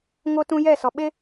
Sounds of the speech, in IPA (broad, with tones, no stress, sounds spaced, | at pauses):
ŋ o˦ t ũ˦ j ɛ˦˨ s ɔ˨ ɓ e˦